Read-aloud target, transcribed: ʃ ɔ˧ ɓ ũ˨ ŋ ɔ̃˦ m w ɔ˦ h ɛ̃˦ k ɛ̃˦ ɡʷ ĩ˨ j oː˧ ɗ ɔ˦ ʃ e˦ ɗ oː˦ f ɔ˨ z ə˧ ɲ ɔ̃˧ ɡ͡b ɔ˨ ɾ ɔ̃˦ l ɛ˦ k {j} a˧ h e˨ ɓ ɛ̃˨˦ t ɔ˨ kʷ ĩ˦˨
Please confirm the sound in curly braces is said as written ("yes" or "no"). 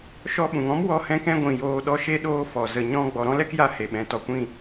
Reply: yes